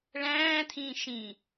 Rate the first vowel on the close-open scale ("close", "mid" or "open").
open